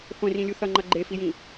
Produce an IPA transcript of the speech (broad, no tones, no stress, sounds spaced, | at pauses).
χʷ ẽ r ĩ lʲ u θ ʌ ŋ͡ǃ ʌ ɡ͡ǃ e f i j ĩ